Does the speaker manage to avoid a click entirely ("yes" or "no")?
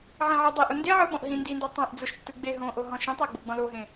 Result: yes